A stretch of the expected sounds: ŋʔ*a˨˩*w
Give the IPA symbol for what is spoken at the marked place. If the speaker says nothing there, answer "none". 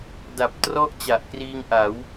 a˩˦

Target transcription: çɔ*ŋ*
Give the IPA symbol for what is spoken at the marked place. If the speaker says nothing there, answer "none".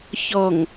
ŋ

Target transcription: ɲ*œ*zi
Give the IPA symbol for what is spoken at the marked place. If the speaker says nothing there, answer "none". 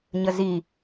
ə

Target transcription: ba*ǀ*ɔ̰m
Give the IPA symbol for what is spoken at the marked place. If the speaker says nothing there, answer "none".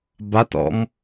t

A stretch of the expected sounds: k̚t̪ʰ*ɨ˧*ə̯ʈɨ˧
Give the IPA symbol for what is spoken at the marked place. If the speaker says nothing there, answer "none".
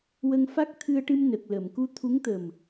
ɨ˧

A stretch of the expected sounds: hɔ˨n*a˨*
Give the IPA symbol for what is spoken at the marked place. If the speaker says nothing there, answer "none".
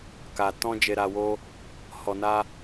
a˧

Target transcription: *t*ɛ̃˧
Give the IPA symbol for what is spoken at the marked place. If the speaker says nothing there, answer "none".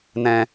n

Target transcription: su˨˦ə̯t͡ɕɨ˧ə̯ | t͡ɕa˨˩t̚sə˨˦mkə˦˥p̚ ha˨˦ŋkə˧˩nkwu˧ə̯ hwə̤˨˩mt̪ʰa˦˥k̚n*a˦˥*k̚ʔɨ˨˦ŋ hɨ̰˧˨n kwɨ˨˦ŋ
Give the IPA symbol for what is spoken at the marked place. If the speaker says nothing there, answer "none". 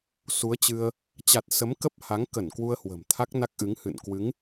a˦˥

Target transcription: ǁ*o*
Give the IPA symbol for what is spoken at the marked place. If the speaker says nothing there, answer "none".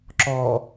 ɔ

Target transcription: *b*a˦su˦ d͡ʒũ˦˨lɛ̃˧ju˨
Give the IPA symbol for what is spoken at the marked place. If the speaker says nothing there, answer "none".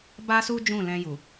b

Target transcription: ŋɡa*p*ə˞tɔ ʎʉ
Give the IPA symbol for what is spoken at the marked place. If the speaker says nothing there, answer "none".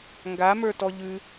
m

